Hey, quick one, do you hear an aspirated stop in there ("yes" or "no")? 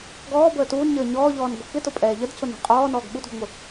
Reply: no